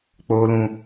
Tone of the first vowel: high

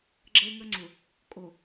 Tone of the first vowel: high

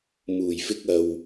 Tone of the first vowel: low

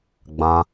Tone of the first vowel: high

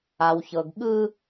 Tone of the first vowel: low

